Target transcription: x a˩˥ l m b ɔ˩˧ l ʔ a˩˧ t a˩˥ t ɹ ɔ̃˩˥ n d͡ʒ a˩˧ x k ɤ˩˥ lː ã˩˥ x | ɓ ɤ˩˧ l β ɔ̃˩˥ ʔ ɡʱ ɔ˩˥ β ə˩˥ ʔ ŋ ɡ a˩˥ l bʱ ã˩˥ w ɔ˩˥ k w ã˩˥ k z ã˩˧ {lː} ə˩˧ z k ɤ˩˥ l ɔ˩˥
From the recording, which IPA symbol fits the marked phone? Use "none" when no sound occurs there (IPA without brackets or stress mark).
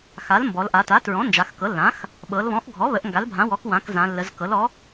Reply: lː